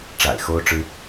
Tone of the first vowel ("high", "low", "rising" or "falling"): low